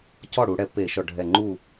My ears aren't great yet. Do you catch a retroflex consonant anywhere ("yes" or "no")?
yes